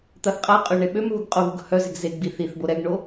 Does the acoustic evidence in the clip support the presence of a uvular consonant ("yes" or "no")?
yes